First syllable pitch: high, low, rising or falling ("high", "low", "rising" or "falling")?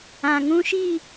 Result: low